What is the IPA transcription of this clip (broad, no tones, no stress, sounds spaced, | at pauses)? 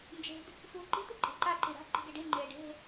n d͡ʒ e̤ d | sʷ ɯː ǃ i̤ t̪ ɯ ǃʼ e̤ ǃ a ǃ i ɾ a̤ ǃ i̤ ɡ e ɖ i ŋ͡ǃ eː ɖ e̤